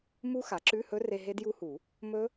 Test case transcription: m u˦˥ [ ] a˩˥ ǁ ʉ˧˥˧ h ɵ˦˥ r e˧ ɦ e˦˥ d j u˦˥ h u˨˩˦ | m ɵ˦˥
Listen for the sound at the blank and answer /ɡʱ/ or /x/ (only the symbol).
x